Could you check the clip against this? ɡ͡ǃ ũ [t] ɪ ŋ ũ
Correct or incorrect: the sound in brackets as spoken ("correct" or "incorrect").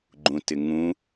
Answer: correct